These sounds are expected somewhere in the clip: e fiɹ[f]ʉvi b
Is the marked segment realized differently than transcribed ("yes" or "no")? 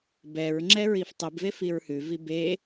yes